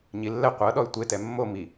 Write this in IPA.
ɲilːɛ qʷɤ ɗɔy̯tʷe tɛmːo mi

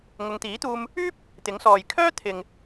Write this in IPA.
ŋʊ˨˧ŋt̪iː˨˥t̪uː˧m | yː˥p̚ | t̪ɪ˨˥ŋsɔː˨j kʰœː˥ t̪ʰɪ˨ŋ

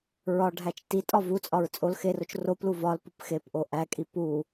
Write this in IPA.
ɹɒɖʱæt͡ʃ ti tʼɒvut͡sʼɒɹ t͡sʼol xerot͡ʃ roplu vɒl pupxepʔo ʔækʼi pu

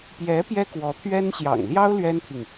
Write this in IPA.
pjɛ˧˥ pjɛ˥kwɔ˧˥t̪ʰɥɛ˥n ɕjɑ̰˨˩ŋljɑ˥ʊ̯ lɥɛ˥nt̪ʰi˨ŋ

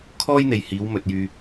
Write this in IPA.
kʰɔː˥jn̪e˨jhiː˨˧w mɵ˨t̚jyː˧

